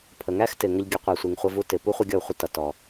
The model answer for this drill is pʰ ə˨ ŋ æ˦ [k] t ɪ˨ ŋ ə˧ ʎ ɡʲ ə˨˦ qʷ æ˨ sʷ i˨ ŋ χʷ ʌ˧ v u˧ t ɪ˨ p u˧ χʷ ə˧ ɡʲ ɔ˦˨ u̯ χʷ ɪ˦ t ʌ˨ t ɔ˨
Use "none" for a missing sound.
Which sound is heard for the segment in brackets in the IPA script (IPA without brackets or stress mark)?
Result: x